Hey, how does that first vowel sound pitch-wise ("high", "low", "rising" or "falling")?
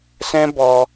high